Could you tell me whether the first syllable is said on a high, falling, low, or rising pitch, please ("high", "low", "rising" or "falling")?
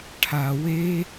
low